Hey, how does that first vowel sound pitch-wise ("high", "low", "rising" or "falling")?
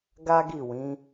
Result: high